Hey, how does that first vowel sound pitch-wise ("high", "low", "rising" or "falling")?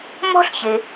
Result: high